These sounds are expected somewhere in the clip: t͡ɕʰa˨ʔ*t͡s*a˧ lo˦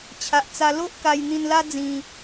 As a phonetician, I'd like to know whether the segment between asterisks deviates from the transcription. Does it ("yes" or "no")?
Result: no